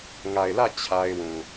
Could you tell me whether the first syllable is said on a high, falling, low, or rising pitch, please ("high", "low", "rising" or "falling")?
low